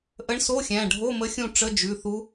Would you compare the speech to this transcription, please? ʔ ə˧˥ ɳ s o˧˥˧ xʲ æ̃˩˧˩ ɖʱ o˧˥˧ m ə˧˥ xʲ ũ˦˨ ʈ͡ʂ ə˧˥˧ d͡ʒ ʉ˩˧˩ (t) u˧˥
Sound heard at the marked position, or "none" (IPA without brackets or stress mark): θ